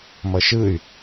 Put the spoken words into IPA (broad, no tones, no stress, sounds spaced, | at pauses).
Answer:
m ʌ ʃ ɯ y̯